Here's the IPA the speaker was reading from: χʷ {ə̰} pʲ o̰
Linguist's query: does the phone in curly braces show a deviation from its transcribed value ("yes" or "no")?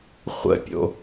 no